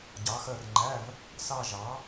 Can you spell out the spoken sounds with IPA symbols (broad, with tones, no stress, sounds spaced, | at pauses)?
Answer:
ɟ ɑ˨˥ x ɜ˦˨ r ŋ͡ǃ æ˧˥˧ v | s ɑ˦˨ ʒ ɑ˨˥